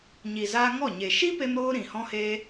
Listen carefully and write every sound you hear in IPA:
ɲ i˨ z aː˧ ŋ ɔ˦˨ ɲ e˨ ʃ i˦ p e˧ m ɾ oː˧ ɾ ĩ˨ h ɔ̃˦ h e˦

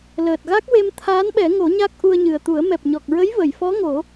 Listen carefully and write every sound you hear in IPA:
l əː˨˩ t̚ ɣ a˦˥ k̚ w e˧ m t̪ʰ aː˧˥ n ɓ ɛ˨˩˦ ŋ o˨˩˦ ɲ a˦˥ k̚ ʔ u˧ ə̯ ɲ ɨ˨˩ ə̯ t̪ u˨˩˦ ə̯ m ɛ˨˩ p̚ ɲ ɔ˨˩ k̚ ɹ ə˧˥ j v ə˨˩˨ j f ɔ˧˥ ŋ o˨˩˦

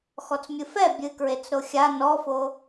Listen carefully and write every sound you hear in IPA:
x ɔ t͡s mʲ ɨ f ɛ bʲ ɨ k ɹ e t͡s ɾ o xʲ a n ɔ f o

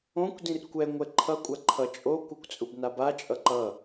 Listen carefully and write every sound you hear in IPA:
õ kʷ d ĩ r kʷ ɛ ŋʷ ɛ ǃʰ ʌ kʷʼ a ǃʰ ʌ t͡ʃʼ o kʷ ɯ kʷ t͡sʼ u b n a b a t͡ʃʼ ʌ ǃ ʌ

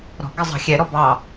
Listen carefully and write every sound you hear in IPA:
ɾ ɔ̤ ɡ ɪ zˤ ɑ̤ xʲ ɛ ɾ ɔ b ɑ

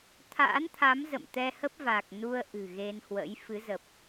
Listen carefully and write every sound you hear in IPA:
t̪ʰ a̰ː˧˥ n t̪ʰ a˨˦ m z ə̰˧˨ m t̪ ɛ˧ h ə˦˥ p̚ v a˨˩ k̚ n u˧ ə̯ ʔ ɨ̤˨˩ ɣ e˧ n h w ə̰˧˥ j f ɨ˨˦ z ə˨˩ p̚

